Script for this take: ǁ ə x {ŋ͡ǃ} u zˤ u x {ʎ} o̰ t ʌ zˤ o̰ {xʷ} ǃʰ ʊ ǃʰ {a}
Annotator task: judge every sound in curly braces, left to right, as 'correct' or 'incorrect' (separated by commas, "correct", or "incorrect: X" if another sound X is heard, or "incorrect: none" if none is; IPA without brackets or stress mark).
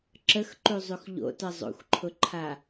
incorrect: ǃ, correct, correct, correct